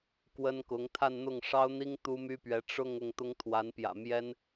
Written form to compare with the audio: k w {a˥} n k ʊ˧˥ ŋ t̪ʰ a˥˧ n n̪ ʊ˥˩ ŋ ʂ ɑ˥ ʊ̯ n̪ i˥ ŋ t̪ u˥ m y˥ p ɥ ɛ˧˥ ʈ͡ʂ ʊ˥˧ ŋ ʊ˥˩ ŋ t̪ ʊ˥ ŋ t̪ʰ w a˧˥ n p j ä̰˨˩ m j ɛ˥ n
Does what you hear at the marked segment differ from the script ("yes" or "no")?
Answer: yes